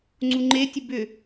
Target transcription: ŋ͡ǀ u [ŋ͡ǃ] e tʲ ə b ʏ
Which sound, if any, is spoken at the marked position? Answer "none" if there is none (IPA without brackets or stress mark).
ŋ͡ǃ